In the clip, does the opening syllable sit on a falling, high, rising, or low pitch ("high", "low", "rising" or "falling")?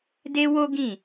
high